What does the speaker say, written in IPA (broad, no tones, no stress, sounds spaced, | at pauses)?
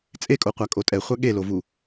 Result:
t͡sʼ e kʼ o qʷ a kʼ o tʼ ɛ χʷ a ɠ e l o v u